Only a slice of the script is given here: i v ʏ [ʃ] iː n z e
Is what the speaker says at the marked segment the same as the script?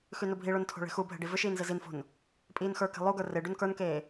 yes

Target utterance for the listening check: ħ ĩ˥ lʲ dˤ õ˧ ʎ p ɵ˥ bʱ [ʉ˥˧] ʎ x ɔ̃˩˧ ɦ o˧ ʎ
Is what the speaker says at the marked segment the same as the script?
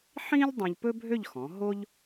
no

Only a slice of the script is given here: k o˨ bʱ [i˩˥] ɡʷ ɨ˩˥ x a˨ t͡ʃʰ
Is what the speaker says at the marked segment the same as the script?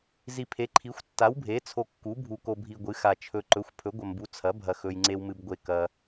no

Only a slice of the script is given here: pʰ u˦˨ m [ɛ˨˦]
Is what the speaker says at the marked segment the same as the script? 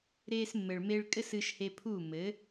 no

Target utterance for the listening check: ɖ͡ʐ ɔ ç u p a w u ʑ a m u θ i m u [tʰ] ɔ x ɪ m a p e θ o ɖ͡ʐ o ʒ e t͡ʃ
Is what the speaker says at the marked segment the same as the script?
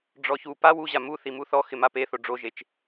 no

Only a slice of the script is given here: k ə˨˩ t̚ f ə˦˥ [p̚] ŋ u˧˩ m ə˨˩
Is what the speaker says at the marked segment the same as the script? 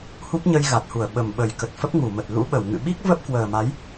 yes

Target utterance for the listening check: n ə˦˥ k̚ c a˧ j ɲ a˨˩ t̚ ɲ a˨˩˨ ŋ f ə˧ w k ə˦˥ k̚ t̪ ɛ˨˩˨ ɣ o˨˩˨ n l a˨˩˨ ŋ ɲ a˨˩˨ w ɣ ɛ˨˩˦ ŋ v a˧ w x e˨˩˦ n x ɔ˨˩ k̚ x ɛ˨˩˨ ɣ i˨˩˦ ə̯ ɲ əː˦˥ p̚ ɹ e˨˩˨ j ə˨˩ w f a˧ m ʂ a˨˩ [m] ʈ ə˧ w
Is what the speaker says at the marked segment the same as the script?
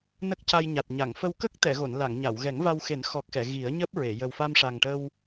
no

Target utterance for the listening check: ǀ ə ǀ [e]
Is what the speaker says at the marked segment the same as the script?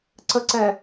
no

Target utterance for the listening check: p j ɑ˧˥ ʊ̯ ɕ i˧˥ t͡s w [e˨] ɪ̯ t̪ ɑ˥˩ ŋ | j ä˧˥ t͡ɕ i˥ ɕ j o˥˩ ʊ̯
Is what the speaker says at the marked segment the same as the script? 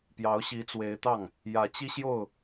no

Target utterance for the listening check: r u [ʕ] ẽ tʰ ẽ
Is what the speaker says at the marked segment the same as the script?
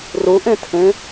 no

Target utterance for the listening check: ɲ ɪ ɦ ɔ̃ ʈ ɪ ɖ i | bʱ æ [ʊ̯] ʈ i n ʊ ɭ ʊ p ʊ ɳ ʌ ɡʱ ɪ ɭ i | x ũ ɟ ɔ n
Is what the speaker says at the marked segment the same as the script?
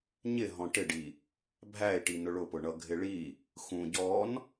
no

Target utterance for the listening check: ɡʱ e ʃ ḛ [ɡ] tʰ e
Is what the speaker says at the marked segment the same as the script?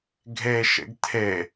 yes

